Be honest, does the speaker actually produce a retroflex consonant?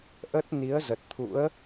no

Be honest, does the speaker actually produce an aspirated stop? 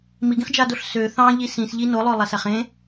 no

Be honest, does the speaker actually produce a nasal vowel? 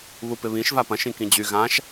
yes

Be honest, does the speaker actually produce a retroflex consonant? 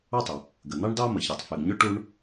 yes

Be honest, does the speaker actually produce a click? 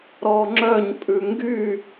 yes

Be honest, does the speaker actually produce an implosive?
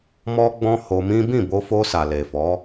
no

